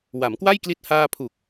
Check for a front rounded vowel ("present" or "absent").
absent